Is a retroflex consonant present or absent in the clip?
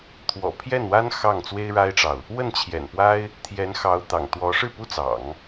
present